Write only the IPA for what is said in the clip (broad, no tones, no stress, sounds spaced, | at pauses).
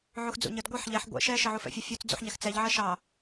ʕ u x d͡z ṵ ɲ ə d ɡʷ ʌ ħ ʎ ɛ ħ ɡʷ ɛ̰ ʃ ɛ ʃ ɜ ʕ u f ɛ̰ fʲ ʌ fʲ u t͡s d͡z ṵ ħ ɲ æ x t͡s ɛ ʎ ʕ ɜ ʃ ɑ